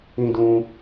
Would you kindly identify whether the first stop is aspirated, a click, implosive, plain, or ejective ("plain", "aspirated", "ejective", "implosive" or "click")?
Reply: plain